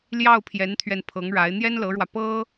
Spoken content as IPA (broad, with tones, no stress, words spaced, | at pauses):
ljɑ˥˩ʊ̯pʰjɛ˧˥n t̪ʰɥɛ˥˩n pʰɤ˧˥ŋɻa˧˥ɪ̯ n̪jɛ˥nlɤ˧˥ɻwä˧ pɤ˥